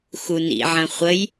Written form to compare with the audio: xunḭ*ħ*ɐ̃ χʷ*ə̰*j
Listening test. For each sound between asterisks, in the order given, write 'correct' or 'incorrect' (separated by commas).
incorrect, incorrect